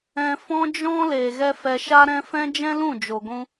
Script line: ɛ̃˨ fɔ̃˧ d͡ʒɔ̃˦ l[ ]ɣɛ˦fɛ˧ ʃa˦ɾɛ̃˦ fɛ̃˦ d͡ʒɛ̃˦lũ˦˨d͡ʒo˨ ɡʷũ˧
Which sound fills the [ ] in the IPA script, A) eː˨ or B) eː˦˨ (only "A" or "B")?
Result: A